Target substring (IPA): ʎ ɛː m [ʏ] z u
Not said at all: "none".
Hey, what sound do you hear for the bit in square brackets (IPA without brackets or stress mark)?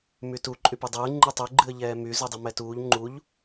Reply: y